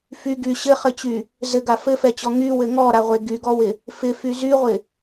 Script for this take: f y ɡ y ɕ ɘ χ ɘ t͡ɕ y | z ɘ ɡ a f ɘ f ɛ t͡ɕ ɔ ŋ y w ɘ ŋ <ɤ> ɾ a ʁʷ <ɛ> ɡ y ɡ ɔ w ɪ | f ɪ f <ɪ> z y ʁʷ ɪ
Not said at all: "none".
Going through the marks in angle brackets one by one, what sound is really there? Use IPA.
ɔ, e, y

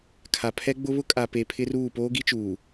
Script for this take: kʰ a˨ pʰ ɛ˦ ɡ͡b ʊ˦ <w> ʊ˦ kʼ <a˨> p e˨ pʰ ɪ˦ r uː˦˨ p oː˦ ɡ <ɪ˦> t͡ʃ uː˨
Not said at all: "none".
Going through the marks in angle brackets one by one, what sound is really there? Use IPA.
β, a˨, i˦

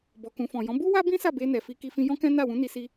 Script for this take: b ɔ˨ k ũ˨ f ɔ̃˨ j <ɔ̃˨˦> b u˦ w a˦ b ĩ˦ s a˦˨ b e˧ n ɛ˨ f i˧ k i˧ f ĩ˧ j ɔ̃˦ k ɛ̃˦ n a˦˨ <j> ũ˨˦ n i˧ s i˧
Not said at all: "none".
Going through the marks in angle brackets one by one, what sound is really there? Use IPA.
ɔ̃˨˦, w

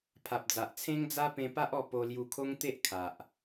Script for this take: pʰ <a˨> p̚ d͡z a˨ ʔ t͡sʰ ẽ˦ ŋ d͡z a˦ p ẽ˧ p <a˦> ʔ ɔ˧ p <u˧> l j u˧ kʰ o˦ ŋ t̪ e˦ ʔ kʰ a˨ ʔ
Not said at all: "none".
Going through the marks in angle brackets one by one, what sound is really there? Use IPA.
a˨, a˦, o˧

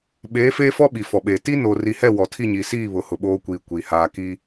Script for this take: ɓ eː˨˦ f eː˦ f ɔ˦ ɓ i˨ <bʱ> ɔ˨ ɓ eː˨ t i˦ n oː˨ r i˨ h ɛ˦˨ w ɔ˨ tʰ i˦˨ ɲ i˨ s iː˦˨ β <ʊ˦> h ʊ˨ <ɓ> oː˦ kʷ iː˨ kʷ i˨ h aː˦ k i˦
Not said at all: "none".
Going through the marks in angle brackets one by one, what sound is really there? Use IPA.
f, ʊ˨, ɓ

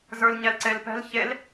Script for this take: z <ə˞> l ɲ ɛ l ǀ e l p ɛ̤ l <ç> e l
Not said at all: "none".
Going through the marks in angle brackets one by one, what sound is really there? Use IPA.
ə˞, ç

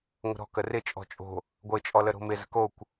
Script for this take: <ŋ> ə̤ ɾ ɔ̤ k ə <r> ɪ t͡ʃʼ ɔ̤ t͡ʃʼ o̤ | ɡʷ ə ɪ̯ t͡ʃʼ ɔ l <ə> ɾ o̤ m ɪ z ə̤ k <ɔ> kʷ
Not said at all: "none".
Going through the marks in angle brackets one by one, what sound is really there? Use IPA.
ŋʷ, r, ə, o

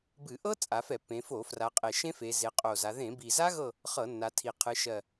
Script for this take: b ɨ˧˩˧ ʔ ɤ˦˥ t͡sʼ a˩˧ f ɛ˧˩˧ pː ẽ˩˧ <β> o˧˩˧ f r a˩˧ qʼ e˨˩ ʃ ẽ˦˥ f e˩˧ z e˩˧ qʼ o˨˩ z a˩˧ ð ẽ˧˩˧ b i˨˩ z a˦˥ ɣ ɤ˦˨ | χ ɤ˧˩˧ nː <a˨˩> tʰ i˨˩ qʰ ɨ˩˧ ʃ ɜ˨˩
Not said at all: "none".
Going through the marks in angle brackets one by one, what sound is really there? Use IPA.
f, a˩˧

